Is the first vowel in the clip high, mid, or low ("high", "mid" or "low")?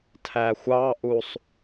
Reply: low